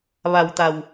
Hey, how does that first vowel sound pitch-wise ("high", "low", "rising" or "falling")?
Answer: low